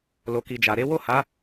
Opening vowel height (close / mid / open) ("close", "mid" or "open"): mid